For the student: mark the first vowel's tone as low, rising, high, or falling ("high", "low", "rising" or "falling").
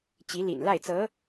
rising